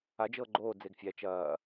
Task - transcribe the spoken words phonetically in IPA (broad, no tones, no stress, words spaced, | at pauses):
ad͡ʒɤː ɡ͡ǃoː d͡zeɡfʲæ t͡ʃɐː